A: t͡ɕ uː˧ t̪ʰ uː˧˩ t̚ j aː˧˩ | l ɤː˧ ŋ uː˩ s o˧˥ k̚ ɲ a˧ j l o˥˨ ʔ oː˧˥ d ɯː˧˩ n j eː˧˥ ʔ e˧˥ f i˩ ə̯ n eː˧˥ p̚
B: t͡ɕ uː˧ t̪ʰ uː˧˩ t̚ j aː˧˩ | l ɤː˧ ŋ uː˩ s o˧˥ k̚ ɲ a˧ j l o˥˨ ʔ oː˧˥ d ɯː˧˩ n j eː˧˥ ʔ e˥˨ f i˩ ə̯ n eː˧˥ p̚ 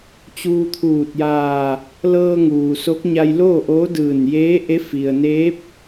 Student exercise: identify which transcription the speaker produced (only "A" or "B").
A